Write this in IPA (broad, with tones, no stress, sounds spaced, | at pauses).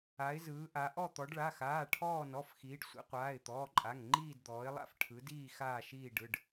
a˩˧ ɪ̯ z ɯː˩˧ ʔ a˩˧ ʔ ɔ˦˨ t̪ ɔ˩˧ ɖ ɭ a˩˧˩ x aː˩˧˩ ʈʰ ɔː˦˨ n ɔ˩˧˩ f x iː˩˧ ɖ sʷ ḭ˩˧ qʷ aː˩˧˩ ɪ̯ t̪ ɔː˩˧˩ ǃʼ a˩˧˩ ŋ ŋ͡ǃ iː˦˨ d d̪ ɔː˩˧ ɪ̯ lˠ a̰˦˨ f ʈʰ ɯ˩˧ d iː˦˨ x aː˦˨ ʃ iː˦˨ ɖ ɯ˩˧˩ ɖ